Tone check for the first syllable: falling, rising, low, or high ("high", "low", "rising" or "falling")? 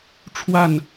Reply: falling